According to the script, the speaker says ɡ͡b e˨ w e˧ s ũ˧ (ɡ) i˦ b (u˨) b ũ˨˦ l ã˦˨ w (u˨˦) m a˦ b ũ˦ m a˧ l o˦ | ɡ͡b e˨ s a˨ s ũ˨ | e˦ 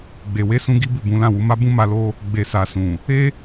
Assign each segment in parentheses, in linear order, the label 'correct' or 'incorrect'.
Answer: correct, incorrect: u˦˨, correct

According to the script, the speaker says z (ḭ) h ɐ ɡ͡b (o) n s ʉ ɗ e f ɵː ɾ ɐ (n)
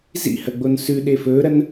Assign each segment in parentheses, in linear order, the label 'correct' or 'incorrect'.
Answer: correct, correct, correct

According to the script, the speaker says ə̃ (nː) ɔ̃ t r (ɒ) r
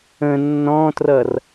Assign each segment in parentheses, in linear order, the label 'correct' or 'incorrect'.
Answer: correct, incorrect: ʌ

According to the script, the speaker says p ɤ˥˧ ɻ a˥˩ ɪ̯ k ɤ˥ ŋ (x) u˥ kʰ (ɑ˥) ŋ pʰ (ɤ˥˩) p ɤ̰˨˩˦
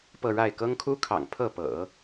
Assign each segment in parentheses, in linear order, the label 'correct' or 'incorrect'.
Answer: incorrect: kʰ, incorrect: ɑ̰˨˩, correct

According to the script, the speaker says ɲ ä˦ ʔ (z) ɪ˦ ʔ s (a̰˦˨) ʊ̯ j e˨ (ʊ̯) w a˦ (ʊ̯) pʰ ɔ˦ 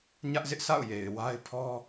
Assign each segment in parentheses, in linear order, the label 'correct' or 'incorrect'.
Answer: correct, correct, incorrect: ɪ̯, incorrect: ɪ̯

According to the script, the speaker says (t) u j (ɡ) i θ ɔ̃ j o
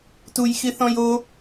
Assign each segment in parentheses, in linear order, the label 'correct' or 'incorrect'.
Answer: correct, incorrect: x

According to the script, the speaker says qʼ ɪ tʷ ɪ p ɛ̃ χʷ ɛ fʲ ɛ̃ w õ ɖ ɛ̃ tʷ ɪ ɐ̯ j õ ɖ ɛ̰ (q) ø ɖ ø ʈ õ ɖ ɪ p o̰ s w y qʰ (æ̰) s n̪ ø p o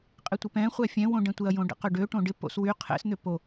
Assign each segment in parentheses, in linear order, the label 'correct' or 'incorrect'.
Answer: correct, incorrect: ɛ̰

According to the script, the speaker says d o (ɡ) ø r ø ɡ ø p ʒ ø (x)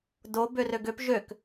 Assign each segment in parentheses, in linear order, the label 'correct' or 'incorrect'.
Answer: incorrect: b, incorrect: k

